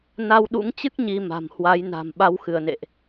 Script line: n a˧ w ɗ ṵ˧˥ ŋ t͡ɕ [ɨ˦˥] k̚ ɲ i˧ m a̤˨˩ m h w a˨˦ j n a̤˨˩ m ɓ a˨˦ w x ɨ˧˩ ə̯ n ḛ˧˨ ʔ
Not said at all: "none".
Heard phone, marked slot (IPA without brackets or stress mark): ɨ˦˥